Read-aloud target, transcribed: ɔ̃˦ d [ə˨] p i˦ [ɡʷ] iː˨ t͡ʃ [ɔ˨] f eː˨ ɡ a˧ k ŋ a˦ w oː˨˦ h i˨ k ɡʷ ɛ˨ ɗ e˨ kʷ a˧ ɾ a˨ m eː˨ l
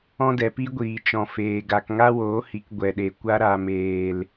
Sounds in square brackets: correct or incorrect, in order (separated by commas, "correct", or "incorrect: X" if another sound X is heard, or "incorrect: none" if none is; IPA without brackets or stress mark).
incorrect: ɛ˨, correct, incorrect: ɔ̃˨